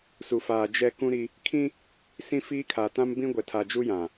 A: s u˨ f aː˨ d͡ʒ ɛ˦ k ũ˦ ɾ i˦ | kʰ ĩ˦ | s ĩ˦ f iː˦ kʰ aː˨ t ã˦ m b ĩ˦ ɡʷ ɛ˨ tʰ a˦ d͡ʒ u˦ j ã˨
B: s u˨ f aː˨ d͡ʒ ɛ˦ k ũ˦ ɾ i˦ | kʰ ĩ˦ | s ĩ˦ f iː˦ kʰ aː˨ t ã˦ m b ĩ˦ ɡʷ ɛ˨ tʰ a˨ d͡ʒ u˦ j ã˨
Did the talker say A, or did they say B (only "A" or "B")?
B